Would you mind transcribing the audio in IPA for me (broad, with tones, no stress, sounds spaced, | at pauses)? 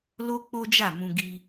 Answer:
l o˦ k͡p o˦ d͡ʒ a˦˨ m ũ˧ ɡ i˧